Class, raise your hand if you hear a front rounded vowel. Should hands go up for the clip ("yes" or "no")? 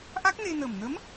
no